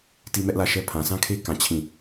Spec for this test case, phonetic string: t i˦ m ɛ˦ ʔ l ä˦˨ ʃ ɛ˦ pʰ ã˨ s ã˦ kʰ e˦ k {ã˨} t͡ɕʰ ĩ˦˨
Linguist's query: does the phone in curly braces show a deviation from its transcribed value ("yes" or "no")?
yes